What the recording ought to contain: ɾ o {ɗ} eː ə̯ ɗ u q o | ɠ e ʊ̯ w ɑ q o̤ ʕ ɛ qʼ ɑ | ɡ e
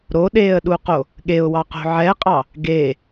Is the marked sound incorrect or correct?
correct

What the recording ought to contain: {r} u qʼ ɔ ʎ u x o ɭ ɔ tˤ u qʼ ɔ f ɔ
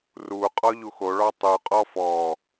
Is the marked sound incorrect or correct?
correct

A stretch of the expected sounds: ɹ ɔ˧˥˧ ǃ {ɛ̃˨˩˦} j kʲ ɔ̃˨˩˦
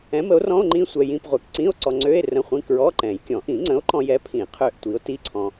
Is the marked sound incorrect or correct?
correct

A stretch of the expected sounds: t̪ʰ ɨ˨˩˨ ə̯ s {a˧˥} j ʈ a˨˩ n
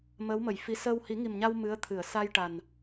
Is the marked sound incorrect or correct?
incorrect: a˧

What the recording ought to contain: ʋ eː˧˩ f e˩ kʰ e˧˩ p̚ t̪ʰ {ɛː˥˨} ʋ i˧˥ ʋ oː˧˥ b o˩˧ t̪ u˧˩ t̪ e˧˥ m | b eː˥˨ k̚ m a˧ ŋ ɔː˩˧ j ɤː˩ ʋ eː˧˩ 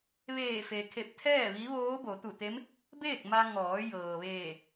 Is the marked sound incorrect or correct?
correct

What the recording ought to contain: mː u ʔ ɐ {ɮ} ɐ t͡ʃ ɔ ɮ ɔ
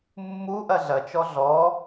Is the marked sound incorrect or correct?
correct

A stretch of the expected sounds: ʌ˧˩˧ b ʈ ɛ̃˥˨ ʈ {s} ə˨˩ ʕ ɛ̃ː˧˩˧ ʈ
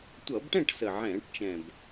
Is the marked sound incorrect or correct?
correct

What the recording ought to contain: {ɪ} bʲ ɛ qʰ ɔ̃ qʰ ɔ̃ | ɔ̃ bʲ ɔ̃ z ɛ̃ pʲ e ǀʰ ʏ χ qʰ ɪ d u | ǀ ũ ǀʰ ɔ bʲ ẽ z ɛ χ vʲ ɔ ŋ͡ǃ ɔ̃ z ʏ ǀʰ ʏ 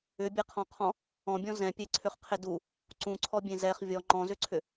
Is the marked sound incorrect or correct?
incorrect: ʏ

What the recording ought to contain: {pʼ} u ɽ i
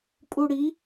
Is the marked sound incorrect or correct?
correct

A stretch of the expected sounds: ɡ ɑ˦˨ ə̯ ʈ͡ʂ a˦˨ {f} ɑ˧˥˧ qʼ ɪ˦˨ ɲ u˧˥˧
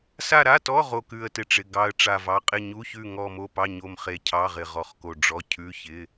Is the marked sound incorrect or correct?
incorrect: v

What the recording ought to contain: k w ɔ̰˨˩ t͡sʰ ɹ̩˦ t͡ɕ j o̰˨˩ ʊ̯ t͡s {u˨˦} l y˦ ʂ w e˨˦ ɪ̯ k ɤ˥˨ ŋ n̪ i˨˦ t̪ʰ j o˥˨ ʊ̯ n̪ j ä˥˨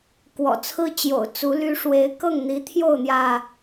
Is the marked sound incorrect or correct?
correct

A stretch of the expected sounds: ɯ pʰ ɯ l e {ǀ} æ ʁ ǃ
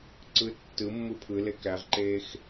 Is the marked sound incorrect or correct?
incorrect: k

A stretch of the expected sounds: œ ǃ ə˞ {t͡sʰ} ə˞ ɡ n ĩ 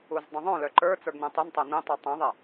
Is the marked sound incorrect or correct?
incorrect: t͡s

